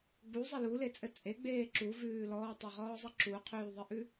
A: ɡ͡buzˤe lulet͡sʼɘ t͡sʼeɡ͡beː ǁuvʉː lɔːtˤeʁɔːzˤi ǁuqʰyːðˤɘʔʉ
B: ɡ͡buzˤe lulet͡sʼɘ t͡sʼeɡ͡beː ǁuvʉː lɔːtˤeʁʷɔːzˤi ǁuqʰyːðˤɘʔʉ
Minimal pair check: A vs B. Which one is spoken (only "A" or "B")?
A